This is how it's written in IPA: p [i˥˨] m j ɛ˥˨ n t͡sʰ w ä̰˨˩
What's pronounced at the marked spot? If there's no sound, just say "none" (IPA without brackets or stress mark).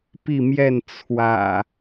i˥˨